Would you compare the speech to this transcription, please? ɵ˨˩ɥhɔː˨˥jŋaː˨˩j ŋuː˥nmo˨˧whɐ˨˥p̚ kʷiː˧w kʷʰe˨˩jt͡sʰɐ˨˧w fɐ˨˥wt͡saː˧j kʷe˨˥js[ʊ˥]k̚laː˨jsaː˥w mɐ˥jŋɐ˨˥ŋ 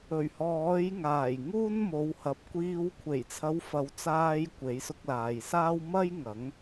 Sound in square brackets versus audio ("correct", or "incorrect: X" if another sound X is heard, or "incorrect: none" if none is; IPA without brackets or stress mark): incorrect: ʊ˧